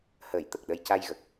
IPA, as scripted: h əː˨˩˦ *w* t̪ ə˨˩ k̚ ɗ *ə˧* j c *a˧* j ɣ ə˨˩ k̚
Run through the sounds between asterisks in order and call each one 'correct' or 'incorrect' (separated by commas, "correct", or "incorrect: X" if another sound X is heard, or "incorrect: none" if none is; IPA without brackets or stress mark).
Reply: incorrect: j, correct, correct